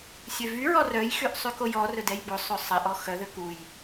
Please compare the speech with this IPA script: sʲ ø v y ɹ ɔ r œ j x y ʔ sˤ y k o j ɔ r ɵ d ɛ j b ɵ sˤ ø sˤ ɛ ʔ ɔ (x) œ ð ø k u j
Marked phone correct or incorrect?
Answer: correct